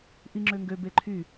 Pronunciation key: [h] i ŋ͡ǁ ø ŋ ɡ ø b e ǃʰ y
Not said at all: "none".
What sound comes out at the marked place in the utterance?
ʔ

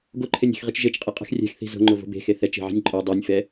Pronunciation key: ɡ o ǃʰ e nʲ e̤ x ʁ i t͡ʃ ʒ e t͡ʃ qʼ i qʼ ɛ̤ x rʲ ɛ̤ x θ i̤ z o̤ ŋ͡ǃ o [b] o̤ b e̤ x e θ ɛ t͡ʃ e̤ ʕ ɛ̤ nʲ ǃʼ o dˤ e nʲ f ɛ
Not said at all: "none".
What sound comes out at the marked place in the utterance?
v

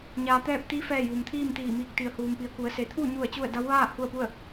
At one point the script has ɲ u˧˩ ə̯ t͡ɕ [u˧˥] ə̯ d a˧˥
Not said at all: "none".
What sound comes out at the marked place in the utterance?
u˥˨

